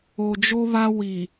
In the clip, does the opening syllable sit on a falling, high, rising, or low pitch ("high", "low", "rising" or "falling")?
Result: low